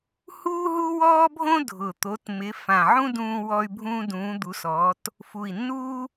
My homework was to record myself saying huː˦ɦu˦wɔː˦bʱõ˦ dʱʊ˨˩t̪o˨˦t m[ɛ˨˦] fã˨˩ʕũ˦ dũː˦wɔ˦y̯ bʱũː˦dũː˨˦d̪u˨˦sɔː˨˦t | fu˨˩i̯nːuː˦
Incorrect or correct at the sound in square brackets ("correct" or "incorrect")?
incorrect